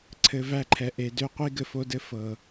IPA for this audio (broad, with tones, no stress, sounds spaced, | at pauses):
ǀʰ ɘ˨ v æ˦˨ ǃʰ ɛ˨ ʔ e˨ d ø˦ qʷ i˦ ɡ ɘ˨ f o˦ d ɘ˦ f ɤ˨